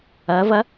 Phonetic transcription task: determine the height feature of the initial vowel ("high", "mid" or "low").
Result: low